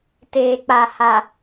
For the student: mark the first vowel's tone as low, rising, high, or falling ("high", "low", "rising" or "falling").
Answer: low